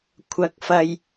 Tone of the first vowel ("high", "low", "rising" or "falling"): low